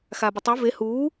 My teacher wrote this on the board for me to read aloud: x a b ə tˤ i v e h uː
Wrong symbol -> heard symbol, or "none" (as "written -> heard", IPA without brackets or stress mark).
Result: none